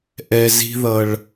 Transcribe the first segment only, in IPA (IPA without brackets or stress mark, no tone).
ʔ